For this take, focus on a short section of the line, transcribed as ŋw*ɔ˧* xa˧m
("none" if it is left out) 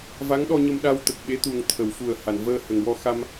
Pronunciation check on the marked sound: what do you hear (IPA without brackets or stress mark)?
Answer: ɔ˧